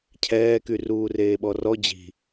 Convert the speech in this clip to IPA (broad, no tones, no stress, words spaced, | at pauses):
cʰɛːky ruːreːɓɔrɔ d͡ʑi̤